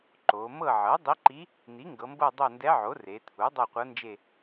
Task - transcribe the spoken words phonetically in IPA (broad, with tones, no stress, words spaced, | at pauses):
ǃo˩˧ mɤ˦˨ʕɤ˩˥dˤi˧˥ǃi˧˥ | n̪i˩˥ŋɡɤ˩˧mbɤ˦˨ dˤo˦˨ndɛ˧˥ʕo˩˥ re˩˧t̪ʰu˩˥ dˤɤ˦˨qʷɤ˧˥nd͡ʒe˦˨